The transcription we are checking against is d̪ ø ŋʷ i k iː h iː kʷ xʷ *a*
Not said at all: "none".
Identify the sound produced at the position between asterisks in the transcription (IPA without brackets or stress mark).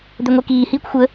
ə